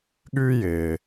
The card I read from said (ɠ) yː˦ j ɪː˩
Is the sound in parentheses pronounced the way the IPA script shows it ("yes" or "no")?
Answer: yes